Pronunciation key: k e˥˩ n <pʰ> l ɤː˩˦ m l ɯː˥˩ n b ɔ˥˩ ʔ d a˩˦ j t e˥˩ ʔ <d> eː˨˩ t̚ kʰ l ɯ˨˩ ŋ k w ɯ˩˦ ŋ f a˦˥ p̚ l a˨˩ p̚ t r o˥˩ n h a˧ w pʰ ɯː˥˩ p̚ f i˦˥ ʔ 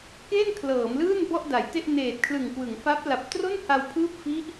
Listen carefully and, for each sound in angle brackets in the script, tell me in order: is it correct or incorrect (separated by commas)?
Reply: incorrect, incorrect